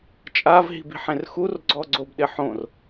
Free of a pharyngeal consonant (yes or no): no